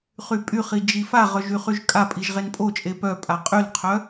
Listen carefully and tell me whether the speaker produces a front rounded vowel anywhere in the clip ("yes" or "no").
yes